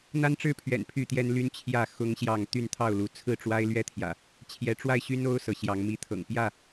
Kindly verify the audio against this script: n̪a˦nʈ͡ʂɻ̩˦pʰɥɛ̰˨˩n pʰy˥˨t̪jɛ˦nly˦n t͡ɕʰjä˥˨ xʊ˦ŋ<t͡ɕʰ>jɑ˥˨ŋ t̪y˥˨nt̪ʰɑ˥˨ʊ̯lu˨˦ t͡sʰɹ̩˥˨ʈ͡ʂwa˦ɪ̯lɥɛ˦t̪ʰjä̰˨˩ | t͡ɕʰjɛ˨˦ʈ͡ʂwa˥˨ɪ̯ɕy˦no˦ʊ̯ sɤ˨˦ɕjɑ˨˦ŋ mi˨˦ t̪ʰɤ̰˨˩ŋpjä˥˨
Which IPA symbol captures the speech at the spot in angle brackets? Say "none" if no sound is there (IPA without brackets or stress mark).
ɕ